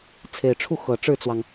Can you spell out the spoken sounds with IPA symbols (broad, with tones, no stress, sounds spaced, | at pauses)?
t͡sʰ e˨˩ ɪ̯ ʈ͡ʂʰ u˥˩ x ɤ˨˩ ʈ͡ʂ ɻ̩˥˩ t͡s w ɑ˩ ŋ